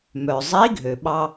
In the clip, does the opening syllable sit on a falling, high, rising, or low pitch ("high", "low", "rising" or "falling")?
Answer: low